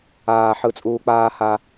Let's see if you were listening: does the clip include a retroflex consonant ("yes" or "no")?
no